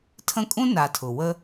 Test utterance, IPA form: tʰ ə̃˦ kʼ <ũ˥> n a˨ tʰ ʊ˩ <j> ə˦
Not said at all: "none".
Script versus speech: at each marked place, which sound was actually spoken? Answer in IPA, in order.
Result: ũ˥, w

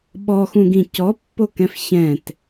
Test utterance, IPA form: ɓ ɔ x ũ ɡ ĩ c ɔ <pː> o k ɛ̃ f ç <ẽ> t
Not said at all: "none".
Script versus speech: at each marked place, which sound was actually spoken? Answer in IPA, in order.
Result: pː, ɛ̃

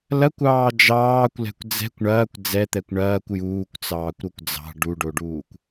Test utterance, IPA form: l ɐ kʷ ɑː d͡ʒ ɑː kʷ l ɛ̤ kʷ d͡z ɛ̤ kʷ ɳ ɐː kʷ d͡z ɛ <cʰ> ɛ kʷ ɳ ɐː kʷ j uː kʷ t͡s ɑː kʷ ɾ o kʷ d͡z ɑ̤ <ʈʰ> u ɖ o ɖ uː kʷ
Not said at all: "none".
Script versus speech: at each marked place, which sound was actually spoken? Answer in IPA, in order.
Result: t̪, ɖ

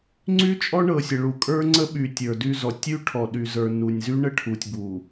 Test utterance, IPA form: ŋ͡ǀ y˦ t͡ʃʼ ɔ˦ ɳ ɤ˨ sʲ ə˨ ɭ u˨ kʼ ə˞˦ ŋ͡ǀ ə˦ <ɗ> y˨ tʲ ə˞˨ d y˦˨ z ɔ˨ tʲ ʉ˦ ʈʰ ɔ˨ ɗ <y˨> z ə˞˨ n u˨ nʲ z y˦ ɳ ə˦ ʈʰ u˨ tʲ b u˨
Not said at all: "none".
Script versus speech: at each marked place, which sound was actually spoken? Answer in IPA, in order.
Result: ɓ, y˨

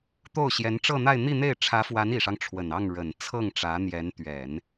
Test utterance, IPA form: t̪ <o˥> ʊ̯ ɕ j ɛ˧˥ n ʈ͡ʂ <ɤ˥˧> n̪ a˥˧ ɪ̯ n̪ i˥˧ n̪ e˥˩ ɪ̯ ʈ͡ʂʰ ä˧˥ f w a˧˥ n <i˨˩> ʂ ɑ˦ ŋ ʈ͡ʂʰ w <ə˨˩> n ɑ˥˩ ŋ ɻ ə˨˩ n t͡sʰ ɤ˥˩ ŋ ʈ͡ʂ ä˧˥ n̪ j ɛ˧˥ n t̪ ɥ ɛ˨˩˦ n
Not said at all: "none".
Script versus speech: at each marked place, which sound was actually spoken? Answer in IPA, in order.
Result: o˥˩, ɤ˥˧, i˨˩, ə˨˩

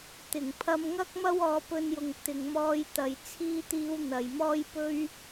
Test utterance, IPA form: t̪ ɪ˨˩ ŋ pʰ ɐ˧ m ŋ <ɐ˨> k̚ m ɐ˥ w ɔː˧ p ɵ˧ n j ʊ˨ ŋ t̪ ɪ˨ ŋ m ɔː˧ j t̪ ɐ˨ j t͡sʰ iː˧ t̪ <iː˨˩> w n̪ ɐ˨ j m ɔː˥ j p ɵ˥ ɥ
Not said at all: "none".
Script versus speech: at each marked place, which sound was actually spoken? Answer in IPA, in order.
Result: ɐ˥, iː˨˧

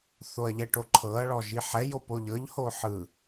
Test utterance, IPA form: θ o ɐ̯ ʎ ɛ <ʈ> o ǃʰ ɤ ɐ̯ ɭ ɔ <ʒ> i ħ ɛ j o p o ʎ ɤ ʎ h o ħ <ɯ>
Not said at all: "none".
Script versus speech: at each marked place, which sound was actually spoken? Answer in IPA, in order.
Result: ʈ, ʒ, ɯ

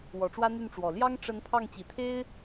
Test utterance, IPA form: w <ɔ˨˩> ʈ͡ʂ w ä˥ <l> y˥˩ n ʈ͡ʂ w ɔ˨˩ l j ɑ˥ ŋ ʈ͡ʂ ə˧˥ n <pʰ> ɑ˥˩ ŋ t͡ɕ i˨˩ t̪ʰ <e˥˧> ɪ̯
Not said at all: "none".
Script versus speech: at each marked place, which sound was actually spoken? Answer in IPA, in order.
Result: ɔ˨˩, n̪, pʰ, e˥

